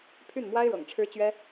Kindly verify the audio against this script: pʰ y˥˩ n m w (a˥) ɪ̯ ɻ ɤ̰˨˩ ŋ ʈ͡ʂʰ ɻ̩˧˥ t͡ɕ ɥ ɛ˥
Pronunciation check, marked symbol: correct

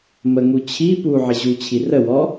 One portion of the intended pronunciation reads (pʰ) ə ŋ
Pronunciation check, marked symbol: incorrect: m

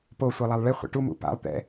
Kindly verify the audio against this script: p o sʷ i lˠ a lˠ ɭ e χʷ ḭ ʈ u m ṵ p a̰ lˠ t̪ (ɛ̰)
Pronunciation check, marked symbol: correct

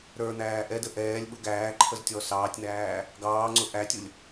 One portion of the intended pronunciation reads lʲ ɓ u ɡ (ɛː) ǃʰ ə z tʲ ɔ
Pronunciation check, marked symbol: incorrect: æː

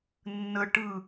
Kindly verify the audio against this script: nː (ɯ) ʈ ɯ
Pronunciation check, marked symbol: incorrect: ə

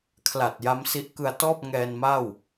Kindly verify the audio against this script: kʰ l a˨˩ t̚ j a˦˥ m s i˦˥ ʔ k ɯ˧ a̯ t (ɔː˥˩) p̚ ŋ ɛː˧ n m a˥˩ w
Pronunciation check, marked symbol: correct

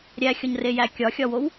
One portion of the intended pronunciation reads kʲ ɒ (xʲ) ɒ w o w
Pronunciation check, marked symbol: correct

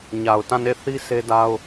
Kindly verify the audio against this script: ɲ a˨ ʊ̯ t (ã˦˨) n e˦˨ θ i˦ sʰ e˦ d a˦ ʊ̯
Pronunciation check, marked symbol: correct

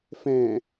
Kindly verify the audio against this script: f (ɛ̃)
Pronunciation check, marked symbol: correct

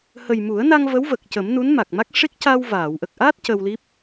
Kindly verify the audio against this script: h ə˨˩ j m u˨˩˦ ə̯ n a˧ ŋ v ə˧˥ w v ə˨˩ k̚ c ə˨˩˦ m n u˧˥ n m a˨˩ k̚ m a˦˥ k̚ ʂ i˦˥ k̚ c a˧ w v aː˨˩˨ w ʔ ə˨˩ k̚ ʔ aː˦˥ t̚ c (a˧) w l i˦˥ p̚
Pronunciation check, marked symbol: incorrect: ə˧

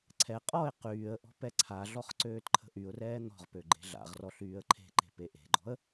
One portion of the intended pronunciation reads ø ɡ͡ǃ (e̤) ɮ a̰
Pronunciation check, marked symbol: correct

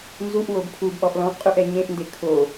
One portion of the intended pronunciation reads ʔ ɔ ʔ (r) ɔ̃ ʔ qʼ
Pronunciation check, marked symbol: incorrect: l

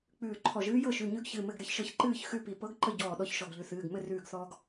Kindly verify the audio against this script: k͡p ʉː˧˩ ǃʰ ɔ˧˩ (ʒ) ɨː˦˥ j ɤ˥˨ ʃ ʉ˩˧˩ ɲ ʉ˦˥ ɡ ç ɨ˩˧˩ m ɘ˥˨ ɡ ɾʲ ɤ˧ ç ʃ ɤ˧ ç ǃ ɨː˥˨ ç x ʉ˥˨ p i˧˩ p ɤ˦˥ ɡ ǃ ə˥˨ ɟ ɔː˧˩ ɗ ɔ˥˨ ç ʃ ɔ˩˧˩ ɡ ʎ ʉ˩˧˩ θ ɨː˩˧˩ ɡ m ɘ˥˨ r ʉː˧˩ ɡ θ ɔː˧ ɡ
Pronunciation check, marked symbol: correct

